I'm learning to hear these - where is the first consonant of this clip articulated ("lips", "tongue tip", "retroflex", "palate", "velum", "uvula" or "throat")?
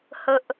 throat